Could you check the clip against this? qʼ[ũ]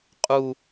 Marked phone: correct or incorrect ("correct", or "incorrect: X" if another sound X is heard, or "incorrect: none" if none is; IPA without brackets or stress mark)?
incorrect: u